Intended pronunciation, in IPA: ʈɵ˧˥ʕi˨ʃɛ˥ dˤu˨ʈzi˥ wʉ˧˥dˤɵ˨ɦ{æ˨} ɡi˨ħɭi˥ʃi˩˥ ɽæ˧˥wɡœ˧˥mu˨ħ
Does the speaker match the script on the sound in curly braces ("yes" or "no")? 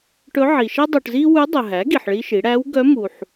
no